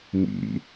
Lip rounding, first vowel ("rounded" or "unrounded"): unrounded